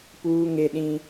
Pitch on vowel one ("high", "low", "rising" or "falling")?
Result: high